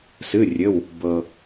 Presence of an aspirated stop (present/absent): absent